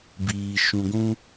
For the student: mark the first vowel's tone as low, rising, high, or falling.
low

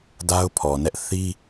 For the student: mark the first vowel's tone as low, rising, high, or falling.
high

